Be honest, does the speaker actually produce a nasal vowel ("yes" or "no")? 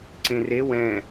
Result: yes